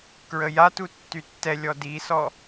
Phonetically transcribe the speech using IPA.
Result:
k ɹ ə j a t u tː y tː ɛ lʲ ɔ d i s ɔ

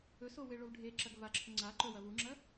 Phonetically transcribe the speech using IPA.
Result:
ɵ s o w e ɭ o v ɖʱ e ǁ ɐ ɡ v a ǁʰ ɵ ŋ͡ǀ a ǃ ɵ w ɐ v u ŋ͡ǁ ɐ

